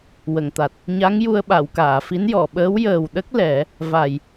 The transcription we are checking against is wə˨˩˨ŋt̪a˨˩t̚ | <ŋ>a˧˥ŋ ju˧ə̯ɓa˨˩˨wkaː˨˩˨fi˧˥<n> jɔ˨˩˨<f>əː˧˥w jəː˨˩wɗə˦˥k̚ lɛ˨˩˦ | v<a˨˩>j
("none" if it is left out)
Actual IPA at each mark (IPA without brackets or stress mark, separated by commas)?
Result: ɲ, n, ɓ, a˨˩